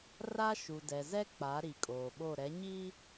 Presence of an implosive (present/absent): present